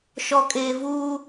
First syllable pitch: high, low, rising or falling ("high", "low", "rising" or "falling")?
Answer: low